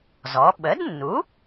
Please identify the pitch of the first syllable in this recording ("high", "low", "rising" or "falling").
rising